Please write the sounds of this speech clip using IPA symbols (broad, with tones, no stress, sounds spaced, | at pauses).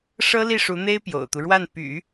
ʂ ɤ˥ l i˥˩ ʂ u˧˥ n̪ e˥ ɪ̯ p j o̰˨˩ ʊ̯ t̪ u˦ ɻ w a˥˩ n p y̰˨˩˦